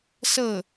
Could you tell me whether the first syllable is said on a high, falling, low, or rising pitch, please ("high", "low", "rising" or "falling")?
falling